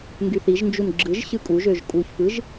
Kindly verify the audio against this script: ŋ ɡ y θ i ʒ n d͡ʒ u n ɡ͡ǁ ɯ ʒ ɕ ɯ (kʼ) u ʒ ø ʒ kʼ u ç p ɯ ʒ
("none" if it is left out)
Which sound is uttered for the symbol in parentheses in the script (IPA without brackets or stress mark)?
kʼ